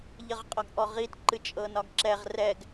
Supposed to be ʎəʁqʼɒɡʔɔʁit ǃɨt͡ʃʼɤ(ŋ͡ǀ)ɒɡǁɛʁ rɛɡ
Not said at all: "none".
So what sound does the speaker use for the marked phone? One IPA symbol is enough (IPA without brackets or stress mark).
n